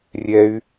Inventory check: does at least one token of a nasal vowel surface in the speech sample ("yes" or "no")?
no